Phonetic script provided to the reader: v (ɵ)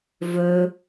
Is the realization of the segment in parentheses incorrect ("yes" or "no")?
no